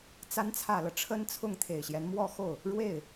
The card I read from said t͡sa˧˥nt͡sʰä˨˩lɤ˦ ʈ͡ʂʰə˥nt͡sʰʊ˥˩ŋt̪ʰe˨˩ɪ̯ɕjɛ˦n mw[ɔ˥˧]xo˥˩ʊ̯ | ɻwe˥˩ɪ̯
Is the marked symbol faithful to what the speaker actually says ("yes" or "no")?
yes